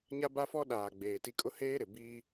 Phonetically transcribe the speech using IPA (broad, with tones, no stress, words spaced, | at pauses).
ɲa˦ba˦fɔ˦ɗaː˨ ɡ͡beː˨ti˦ kʼʊ˦heː˦ɾɪ˨ biː˦